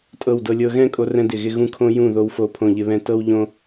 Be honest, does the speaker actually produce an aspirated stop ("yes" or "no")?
yes